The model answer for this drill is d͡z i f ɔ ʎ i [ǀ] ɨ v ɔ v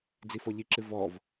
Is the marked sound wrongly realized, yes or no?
yes